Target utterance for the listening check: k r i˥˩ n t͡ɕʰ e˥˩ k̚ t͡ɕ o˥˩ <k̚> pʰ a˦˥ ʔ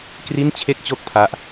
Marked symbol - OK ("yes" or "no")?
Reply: yes